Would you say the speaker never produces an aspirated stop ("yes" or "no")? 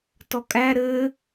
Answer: yes